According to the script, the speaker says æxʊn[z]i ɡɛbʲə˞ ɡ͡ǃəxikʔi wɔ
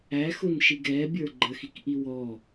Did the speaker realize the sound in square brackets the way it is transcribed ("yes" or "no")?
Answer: no